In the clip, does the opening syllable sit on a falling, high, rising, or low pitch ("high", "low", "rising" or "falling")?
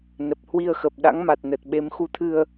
low